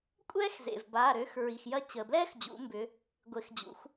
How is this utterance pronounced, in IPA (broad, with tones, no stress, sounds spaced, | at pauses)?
kʷʼ ɛː˥ x z ḛ˩ v b aː˩˧˩ ɾ ø˨˥ x ɹ i˩ x j ɐ˥ t͡ɕ əː˩ b l ɛː˥ x d͡ʑ ṵ˩˧ m b ʏ˩˧ | ɡʷ e˩˧ x d͡ʑ ṵ˩˧ x